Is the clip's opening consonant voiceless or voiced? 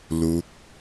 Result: voiced